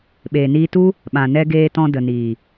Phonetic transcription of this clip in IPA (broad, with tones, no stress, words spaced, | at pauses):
ɓeː˨niː˧tu˦ | ɓã˨nɛ˧ɡeː˧tɔ̃˧ də˨niː˨